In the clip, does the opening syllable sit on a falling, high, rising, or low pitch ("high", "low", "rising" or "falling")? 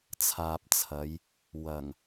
low